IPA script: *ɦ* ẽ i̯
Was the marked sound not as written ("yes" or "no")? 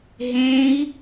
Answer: no